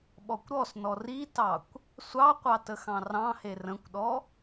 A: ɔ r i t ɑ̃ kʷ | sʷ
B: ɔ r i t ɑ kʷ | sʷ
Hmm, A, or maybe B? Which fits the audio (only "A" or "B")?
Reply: B